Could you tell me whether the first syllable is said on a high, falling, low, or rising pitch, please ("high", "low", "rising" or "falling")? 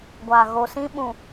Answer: low